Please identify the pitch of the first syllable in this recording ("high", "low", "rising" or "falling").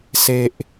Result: low